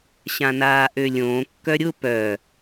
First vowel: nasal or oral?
nasal